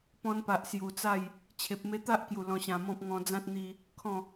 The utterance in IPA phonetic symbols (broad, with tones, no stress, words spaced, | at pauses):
pɔ̃˧npa˨ʔ sju˨˩t͡sa˥˧j | t͡ɕʰe˨p̚me˧t̪a˦ʔkju˨˩ lɔ̃˧ɕã˧mɔ̃˦p̚ ŋɔ̃˧d͡zã˦t̚ n̪i˦ | kʰɔ̃˥˧